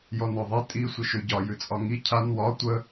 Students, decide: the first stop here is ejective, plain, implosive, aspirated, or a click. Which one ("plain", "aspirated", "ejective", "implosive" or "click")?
ejective